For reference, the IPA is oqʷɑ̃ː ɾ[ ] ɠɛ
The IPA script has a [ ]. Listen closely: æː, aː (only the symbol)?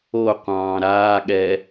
aː